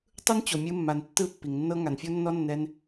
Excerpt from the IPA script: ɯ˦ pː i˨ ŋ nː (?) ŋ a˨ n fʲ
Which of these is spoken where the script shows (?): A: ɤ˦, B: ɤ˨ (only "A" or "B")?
A